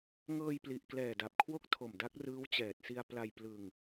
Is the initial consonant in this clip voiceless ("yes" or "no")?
no